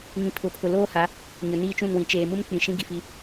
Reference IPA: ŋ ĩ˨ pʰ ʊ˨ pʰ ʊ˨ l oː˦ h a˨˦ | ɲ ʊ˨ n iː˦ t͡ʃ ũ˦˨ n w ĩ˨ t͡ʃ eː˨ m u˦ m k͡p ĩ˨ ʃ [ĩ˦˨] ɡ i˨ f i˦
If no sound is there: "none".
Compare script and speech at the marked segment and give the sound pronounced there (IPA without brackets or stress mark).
ĩ˦